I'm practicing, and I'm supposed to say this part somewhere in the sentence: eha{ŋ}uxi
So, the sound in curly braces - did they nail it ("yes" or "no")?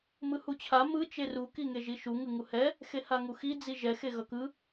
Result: yes